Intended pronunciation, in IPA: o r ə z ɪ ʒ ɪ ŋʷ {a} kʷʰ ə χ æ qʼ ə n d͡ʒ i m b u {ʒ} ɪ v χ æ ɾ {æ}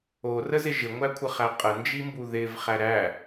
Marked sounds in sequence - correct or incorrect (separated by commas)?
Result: incorrect, incorrect, correct